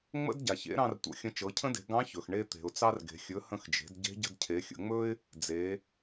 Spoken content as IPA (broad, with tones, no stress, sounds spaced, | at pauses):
ŋ͡m ə̰˥ d ɟ a˩ ç ḛ˧˥ ɾ ɑ̃˧ r tʷ ə̰˩˧ xʲ ə̃˧ t͡ʃ ɤ˩˧ cʰ ə̃˥ d e̤˩˧ ɡ ɑ̃˧˥ ç ɵ˩ x ɳ e˧ t̪ e̤˩ ʊ̯ t͡s ɑ˧ r ɡ e̤˩ xʲ ɵ˩˧ h ə̃˧ x d͡ʒ e̤˩˧ d ɟ e̤˧˥ ɟ ə̤˧ d cʰ e˩˧ xʲ ə̰˩˧ ŋ͡m ɵ˥ ɪ̯ | d͡z e˩˧